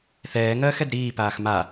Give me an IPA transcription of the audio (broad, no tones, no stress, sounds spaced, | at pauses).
θ ɛː ŋ ɜː x ɛ d ɾ iː p aː x m a